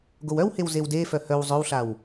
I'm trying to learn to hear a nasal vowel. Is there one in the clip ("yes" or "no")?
no